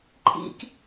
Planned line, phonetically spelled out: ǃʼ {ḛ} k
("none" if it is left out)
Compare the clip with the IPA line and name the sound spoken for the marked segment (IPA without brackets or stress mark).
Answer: ḭ